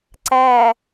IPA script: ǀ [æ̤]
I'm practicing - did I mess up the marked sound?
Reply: yes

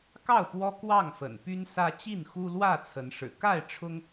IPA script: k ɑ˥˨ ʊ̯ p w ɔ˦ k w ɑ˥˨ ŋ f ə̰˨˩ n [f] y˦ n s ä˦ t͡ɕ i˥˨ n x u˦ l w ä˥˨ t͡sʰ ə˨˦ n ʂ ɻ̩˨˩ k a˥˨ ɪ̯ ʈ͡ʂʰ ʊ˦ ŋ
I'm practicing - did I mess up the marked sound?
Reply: yes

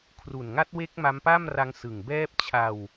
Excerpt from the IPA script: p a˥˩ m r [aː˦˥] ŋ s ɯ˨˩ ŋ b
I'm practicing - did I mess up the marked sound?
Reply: yes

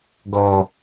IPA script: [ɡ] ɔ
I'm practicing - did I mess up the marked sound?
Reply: no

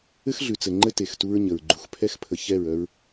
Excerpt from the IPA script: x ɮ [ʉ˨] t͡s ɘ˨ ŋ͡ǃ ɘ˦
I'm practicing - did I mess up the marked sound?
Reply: no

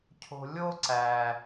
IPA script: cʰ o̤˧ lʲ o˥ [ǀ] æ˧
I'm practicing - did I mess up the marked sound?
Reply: no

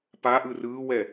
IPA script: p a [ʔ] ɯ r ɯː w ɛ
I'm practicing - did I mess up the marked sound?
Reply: no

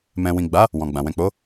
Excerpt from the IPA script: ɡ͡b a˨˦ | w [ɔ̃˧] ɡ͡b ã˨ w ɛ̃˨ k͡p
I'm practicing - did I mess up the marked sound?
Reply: yes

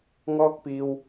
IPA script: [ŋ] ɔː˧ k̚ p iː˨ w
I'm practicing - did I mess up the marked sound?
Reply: no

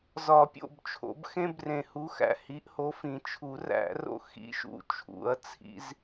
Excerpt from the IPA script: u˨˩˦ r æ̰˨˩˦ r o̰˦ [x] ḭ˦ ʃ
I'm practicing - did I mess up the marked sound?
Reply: no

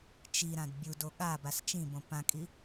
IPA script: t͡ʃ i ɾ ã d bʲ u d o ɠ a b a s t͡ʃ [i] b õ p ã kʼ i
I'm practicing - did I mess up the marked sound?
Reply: yes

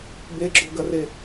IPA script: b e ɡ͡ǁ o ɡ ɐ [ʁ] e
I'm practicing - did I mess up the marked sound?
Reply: yes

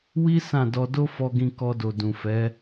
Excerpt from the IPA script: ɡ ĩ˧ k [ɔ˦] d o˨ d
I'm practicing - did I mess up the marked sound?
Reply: yes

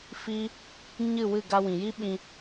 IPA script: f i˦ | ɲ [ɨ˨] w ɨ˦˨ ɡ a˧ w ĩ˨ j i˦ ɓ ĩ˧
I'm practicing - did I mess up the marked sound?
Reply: yes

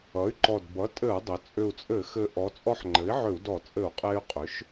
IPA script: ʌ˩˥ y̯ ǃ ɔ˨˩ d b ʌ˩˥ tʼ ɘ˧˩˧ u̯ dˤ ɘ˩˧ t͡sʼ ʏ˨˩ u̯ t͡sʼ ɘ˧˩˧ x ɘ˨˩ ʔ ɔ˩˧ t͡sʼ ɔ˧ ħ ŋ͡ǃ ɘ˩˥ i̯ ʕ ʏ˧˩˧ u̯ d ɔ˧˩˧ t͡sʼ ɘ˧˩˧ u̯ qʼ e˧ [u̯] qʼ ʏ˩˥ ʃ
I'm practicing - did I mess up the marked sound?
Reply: yes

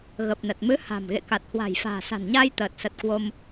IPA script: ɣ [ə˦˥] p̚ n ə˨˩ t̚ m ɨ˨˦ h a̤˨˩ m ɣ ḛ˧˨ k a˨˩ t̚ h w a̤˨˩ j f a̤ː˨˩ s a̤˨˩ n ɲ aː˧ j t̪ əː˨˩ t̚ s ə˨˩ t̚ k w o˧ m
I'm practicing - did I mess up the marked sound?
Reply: yes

